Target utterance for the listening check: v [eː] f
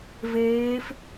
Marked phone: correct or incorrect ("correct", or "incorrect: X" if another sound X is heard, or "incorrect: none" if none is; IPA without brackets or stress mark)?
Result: correct